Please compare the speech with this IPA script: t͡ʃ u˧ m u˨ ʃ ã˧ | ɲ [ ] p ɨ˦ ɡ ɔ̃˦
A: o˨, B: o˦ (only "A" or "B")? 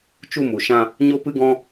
B